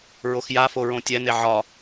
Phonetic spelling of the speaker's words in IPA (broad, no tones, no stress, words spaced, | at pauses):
ɹoxjafo ɹõtʲɛne ʕɒ